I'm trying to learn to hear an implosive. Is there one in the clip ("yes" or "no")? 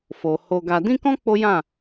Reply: no